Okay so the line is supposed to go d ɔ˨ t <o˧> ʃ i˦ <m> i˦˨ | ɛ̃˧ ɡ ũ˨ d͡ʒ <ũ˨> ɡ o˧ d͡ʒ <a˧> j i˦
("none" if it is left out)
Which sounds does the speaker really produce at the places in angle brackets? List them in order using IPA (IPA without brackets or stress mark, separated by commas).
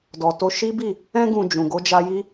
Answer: o˧, b, ũ˨, a˧